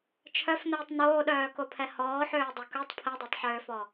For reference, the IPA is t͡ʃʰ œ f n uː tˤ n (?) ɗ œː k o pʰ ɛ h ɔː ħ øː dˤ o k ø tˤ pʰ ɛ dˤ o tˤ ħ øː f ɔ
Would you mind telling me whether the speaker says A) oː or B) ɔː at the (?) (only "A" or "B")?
A